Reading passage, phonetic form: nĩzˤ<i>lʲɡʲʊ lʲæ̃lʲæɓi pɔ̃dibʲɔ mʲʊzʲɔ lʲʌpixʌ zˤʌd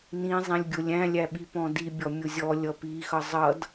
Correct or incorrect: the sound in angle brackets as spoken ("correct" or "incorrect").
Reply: incorrect